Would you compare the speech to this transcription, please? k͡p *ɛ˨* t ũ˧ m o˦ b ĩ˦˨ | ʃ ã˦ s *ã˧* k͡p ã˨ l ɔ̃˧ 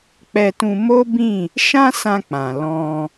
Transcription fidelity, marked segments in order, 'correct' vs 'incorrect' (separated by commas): incorrect, correct